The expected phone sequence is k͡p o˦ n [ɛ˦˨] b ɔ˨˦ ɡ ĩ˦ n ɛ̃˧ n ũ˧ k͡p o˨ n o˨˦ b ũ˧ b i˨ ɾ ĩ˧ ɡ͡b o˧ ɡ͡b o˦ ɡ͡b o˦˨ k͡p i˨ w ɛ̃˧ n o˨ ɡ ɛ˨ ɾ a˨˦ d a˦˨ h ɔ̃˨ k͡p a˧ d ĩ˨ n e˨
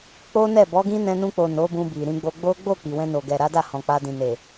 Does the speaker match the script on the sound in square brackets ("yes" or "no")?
yes